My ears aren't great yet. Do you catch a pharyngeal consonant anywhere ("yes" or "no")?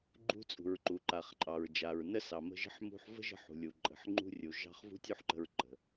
yes